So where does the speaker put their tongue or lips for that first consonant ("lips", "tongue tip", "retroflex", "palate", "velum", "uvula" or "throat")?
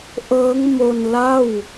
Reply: throat